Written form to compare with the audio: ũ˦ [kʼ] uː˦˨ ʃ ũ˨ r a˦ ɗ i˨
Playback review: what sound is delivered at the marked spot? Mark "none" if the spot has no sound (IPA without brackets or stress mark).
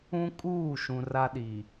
kʼ